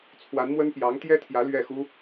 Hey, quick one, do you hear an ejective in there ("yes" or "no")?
no